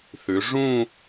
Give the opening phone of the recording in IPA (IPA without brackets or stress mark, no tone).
θ